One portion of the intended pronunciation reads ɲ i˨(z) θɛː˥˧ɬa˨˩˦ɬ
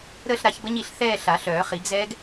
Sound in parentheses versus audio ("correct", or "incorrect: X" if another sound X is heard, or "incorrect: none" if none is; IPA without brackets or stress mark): incorrect: ɬ